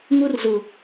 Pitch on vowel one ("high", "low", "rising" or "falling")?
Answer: high